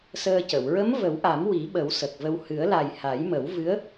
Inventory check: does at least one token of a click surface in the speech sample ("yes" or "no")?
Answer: no